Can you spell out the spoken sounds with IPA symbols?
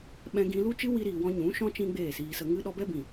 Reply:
ɓ ɛ̃˧ ɡ ĩ˧ l u˦ t͡ʃ ɨ˦ w i˧ ɾ iː˨ w ɔ̃˧ ɲ ũ˨˦ ʃ ɔ̃˦ t͡ʃ ĩ˦ ɡ͡b eː˦˨ s iː˧ s ə˧ ŋ ɨ˧ ɗ ɔ˧ b ɛ˦ b ĩ˨

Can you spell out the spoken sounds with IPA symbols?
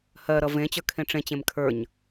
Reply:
h ɜ ɾ ʌ v ẽ t͡ɕ ə˞ kʰ ẽ ʈ͡ʂ ẽ t͡ɕ ẽ m kʰ ə˞ ɲ

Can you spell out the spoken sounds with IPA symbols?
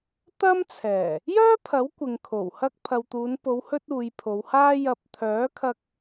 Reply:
t̪ ɐ˥ m t͡sʰ ɛː˨˩ | j œː˥ pʰ ɐ˨˥ w kʷ ɪ˨ ŋ kʰ o˨˩ w h ɐ˧ k̚ pʰ ɐ˨ w t̪ uː˨˧ n p o˨˧ w h ɵ˥ t̚ uː˨˧ j pʰ o˨˧ w h aː˥ j ɐ˧ p̚ t̪ʰ œː˨˥ kʰ ɐ˧ k̚

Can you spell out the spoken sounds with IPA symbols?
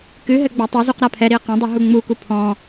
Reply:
k ɨ ɦ ɘ ɡ͡b a tˤ e z u q ɾ a pʰ ɛ ɾ i ə̯ q ɐ̃ dˤ ɨ ɦ u ŋ͡m u k u pʰ ɔ̃

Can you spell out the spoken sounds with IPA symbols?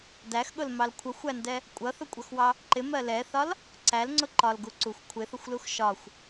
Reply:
d æ x ɠ ʊ l m ɑ l kʷʰ ʌ xʷ æ n d ɛ | kʷʼ ʌ θ ʊ kʷʼ ʌ x w ɑ | ǃ ɪ m ɜ l ɛ θ ɒ l | ǀ æ l ŋ͡ǀ ʊ ǃ ɒ l ɡ u ǀ u xʷ kʷʰ ɪ θ ʊ xʷ l u x ʃ ɒ xʷ

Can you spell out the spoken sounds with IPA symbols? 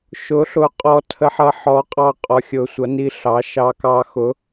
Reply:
ʃ ʊ˨˥ ɬ ʊ˨˥ qʼ ɔ˧ tʰ ə˧ ħ ʌ˧ ħ ɔ˨˥ qʼ ɑ˧ qʼ ɔ˧ xʲ ʊ˧ sʷ ʌ˨˥ n i˧ ɬ ɑ˨˥ ʃ ɑ˧ k ɑ˧ x ʊ˨˥

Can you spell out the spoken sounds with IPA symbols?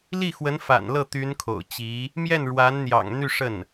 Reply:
l i˥˩ x w ə˧˥ n f a̰˨˩ n l ɤ˥˩ t̪ y˧˥ n kʰ o̰˨˩ ʊ̯ t͡ɕ i˧˥ | m j ɛ˥˩ n ɻ w a˧˥ n n̪ j ɑ̰˨˩ ŋ n̪ y˥˧ ʂ ə˥˩ n

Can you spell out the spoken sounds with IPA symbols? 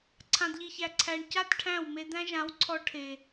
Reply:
ǀʰ ã˨ d ʎ i˨ ç æ˨ ǀʰ æ˨ ɳ c a˦ t ʈʰ æ̃˦˨ w m e˧ d̪ æ̃˦ ʒ ã˨˦ w ǀʰ ɔ˧ ʈʰ e˨

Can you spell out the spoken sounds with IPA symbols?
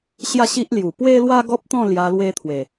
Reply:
ɕ j a˥˧ ɕ i˦ ʔ l j u˨˩ p w e˦ l w a˦ ɡ ɔ˦ p̚ t̪ ɔ̃˥˧ l j a˧ l w e˧ t̪ʰ w e˨˩

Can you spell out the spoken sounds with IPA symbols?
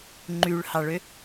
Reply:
ŋ͡ǃ y ɭ h ɑ ɭ ø

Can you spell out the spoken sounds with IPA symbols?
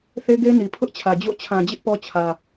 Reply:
θ e˦ ɡ e˦ n i˨ pʰ ʊ˦ ʔ t͡ɕʰ ä˨ d͡ʑ o̰˦˨ t͡ɕʰ ã˨ d͡ʑ ɪ˦ ʔ p ɔ˦ t͡ɕʰ ä˨

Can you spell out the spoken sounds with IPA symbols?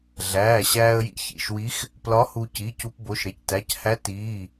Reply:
ɮ æː˩˧˩ ɕ æː˧ ə̯ j ḭ˧˥ ç ḭ˩˧˩ ʃ w i˧˥ x | p l ɒ˧˥ h u˧ c i˩˧˩ c u˧ p b o˩˧˩ ʃ ɾ e˧ c t æ˩˧˩ c h æ˧˥ t iː˩˧˩

